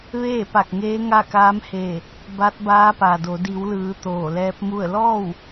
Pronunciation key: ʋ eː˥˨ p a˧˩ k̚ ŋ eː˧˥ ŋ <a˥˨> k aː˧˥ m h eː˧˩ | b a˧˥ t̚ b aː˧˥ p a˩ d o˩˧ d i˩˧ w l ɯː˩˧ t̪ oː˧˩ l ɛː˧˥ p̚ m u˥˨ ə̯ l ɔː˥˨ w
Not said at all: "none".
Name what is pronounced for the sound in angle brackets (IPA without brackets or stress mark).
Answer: a˥˨